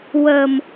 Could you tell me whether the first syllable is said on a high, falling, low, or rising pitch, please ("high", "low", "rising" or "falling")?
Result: low